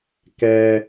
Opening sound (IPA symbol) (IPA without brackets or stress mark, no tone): k